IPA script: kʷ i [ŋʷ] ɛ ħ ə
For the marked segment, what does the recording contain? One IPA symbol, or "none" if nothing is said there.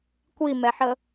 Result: m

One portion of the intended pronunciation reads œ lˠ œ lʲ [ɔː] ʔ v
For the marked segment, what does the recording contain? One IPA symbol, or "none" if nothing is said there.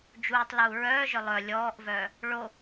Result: ɔː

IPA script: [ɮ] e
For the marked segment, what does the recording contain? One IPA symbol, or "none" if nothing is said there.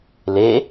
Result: l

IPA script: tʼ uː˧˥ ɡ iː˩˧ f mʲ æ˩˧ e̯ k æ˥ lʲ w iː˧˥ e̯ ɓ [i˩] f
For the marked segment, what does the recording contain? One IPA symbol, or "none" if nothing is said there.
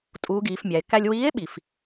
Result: i˩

